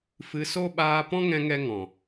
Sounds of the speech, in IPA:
f ɨ˧ s o˦ ɓ aː˧ p ɔ̃˦ ŋ ɛ̃˧ ŋ ɛ˦ ŋ ɔ̃˨

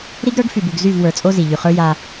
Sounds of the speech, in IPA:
ɾ i˦ ɡ ɾ ə˞˦ ɡ f y˨ b u˨ ɡ z y˦˨ v w ə˞˨ t͡sʼ o˦ z i˨ ʎ y˨ χ ə˞˦ j a˦

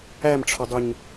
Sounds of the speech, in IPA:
æ m ʈ͡ʂʰ ɒ dˤ u ɲ

